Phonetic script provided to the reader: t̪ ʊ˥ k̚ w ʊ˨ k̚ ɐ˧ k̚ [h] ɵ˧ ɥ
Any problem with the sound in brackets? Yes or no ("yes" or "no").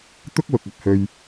no